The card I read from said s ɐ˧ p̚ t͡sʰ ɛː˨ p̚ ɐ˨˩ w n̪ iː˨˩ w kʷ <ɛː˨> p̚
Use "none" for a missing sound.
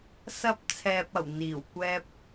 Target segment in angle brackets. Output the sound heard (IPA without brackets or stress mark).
ɛː˧